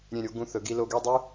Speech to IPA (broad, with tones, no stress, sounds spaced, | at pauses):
ɾʲ ẽ˧˩ ɾʲ o˧ ɡ ũ˧ θ ɵ˩˧ ɡ i˧ l o˧ ɡ y˥˧ dˤ y˥